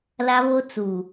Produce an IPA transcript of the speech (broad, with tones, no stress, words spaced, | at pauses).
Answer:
la˦βo˦t͡su˨